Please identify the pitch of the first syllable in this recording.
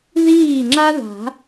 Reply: falling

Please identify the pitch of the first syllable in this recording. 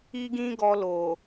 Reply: high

